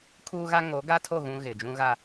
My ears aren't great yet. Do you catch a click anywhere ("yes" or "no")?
no